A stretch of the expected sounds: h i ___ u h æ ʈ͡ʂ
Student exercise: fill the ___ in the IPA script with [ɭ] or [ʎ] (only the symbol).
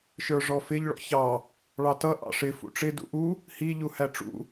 ʎ